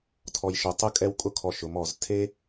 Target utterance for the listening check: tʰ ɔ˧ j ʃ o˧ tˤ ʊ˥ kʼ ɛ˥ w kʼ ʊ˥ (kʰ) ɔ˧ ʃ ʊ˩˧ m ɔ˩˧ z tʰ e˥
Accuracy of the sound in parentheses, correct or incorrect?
correct